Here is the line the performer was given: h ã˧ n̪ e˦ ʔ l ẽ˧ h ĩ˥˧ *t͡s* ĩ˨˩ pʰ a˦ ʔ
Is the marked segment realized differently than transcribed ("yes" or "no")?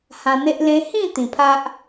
yes